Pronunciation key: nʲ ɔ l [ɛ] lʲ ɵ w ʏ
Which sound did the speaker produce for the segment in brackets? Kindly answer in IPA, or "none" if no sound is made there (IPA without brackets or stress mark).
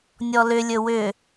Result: ʏ